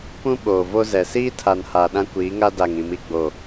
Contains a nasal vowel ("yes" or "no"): yes